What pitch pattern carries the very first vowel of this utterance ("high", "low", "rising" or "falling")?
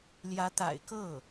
rising